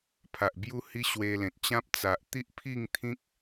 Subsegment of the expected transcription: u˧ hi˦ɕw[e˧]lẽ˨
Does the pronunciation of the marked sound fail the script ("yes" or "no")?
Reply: no